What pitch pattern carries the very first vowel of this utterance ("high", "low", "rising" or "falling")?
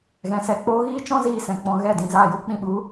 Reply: rising